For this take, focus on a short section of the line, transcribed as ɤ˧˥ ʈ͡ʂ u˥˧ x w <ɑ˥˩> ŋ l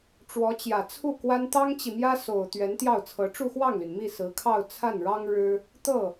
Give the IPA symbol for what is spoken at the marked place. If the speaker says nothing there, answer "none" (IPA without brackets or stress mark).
ɑ˥˩